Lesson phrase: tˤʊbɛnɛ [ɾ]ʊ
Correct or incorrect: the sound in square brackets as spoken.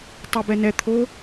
incorrect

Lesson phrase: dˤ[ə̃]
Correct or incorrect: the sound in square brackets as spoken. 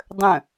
correct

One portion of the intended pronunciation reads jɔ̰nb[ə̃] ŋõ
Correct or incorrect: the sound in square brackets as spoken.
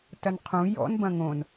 incorrect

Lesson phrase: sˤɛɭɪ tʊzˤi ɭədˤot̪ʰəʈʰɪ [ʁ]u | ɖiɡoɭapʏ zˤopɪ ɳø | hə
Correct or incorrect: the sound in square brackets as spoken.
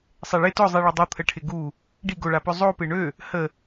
incorrect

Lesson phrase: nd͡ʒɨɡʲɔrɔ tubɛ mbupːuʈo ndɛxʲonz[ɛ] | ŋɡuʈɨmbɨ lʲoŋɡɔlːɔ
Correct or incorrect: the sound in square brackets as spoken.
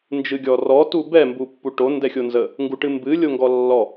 incorrect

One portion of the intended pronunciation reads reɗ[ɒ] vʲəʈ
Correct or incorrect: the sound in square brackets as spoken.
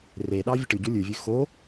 incorrect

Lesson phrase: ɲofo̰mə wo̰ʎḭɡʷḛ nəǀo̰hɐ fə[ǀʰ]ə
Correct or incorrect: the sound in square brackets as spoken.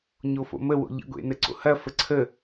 correct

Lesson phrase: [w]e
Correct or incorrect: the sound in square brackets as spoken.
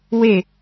correct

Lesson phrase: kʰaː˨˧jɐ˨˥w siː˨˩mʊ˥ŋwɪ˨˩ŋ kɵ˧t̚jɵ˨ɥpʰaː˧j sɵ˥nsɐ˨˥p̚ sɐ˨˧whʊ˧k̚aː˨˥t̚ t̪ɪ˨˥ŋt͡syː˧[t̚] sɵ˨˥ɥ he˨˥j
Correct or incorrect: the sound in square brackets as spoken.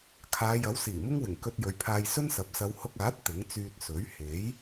correct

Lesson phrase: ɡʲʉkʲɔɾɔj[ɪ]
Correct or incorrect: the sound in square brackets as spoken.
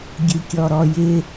correct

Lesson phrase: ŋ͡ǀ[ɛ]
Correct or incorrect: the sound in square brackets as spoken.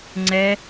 correct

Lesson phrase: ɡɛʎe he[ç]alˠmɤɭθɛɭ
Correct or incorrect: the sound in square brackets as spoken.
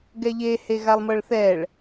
incorrect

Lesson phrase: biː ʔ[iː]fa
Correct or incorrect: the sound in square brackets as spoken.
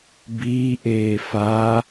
incorrect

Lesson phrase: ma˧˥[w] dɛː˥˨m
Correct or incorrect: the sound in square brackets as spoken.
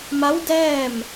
correct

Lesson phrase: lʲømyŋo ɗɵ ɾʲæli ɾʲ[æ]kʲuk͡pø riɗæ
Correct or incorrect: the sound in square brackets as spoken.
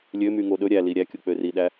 correct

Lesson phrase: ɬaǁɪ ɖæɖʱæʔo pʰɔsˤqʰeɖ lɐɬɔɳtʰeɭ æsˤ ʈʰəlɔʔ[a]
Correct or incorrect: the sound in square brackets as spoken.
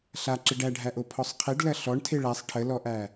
incorrect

